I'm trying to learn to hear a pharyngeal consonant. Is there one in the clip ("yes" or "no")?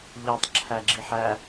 yes